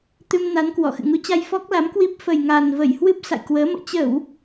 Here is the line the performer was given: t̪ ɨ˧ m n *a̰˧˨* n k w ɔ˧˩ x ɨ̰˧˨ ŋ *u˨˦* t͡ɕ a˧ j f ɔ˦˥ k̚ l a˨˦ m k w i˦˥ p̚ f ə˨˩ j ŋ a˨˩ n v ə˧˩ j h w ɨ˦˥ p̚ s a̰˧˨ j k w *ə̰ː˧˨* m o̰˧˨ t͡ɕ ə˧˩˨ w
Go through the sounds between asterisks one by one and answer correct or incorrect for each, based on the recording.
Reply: incorrect: a˨˦, correct, incorrect: əː˨˦

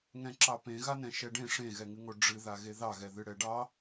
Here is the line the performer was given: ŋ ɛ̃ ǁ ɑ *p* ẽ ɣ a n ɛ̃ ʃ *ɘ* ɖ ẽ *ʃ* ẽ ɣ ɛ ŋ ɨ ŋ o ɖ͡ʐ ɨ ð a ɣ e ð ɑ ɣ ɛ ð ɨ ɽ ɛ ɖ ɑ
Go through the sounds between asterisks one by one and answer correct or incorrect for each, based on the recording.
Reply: correct, incorrect: ɛ, incorrect: ʂ

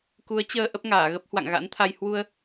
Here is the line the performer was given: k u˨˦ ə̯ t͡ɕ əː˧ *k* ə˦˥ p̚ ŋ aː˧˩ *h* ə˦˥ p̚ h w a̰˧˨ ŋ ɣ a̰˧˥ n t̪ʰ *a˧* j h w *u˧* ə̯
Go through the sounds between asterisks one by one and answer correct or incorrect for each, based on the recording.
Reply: incorrect: ʔ, incorrect: ɣ, correct, correct

